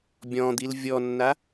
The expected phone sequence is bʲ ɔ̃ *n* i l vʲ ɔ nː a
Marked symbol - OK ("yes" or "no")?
no